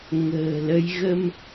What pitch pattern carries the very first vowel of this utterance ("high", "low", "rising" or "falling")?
low